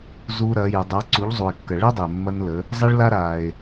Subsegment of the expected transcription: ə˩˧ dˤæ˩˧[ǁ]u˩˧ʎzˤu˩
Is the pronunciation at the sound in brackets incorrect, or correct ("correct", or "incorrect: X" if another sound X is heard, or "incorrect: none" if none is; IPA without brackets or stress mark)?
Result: incorrect: ǀ